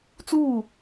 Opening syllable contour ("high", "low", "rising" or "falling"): falling